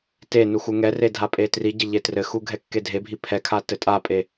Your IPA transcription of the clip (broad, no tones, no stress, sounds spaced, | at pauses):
t e n u x u ŋ ɛ r e dʱ a pʼ e t r i ɟ ɘ ʎ e t r ɘ x u ɡʱ ɛ kː e dʱ e bʱ i pʰ ɛ kʰ a t ɘ tʼ a pʼ e